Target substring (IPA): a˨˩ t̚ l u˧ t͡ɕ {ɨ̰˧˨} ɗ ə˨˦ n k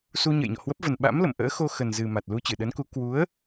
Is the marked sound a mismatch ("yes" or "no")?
yes